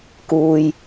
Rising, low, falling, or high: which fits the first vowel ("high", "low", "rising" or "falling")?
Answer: low